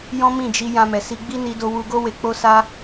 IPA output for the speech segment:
j ɔ̃˦ m ĩ˦˨ d͡ʒ i˧ j ã˧ m ɛ˨ s i˧ ɡ͡b i˦ n i˧ d o˧ w u˧ ɡ o˦ w e˧ k͡p o˧ s a˧

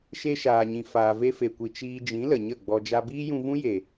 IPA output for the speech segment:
ʃ e˧ ʃ aː˨ ɲ ĩ˨ f aː˨ v e˧ f e˨ kʷ i˨ t͡ʃ iː˧ d͡ʒ ĩ˨˦ l ə˨ ɲ ə˦˨ ɡ͡b ɔ˧ d͡ʒ a˧ b iː˦ j ũ˧ v ũ˦ j e˨

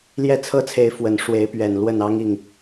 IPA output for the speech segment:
l j ɛ˥˩ t͡sʰ ɤ˥ t͡sʰ e˧˥ ɪ̯ f w ə˨˩ n ʂ w e˧˥ ɪ̯ p ɥ ɛ˨˩ n l w ə˥˩ n ɑ˥ ŋ i˥˩ ŋ

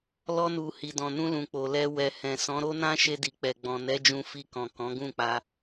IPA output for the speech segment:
l ɔ˧ n u˨ h i˨ d ɔ̃˨ n ũ˧ l ũ˨ k͡p o˨ l ɛ˧ w ɛ˨ h ɛ̃˨ s ɔ̃˨˦ ɾ o˦ n ã˦ ʃ e˧ d i˨ k͡p ɛ˨ ɡ͡b ɔ̃˨ n ɛ˨˦ d͡ʒ ũ˧ f i˧ k ɔ̃˨ k ɔ̃˨˦ ɡ ũ˦˨ k͡p a˧

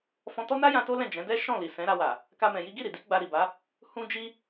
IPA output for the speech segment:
f ɔ̃˧ t ɔ˦ n a˦ j ã˧ t o˦ l ɛ̃˦˨ d͡ʒ ɛ̃˨˦ d ɛ˦ ʃ ɔ̃˦˨ l i˨ s ɛ̃˨˦ ɾ a˧ w a˨ | k a˦ m ɛ̃˧ j i˦ ɡ i˦˨ ɾ i˨ d i˨˦ ɡ͡b a˧ ɾ i˨ b a˨˦ | h ũ˦ d͡ʒ i˦

